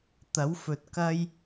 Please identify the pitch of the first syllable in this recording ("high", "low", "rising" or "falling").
rising